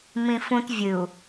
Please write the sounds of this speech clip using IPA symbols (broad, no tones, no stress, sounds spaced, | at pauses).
m ĩ f ũ t vʲ ɨ u̯